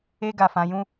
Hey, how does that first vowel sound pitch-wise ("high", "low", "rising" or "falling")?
high